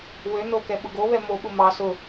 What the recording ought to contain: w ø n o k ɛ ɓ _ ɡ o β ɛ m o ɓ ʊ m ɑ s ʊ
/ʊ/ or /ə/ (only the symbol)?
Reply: ʊ